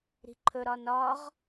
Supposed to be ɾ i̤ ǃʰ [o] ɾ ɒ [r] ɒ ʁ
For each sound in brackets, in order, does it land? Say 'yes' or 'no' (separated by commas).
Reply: no, no